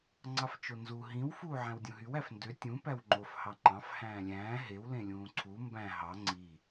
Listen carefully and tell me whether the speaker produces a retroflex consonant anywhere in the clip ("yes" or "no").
no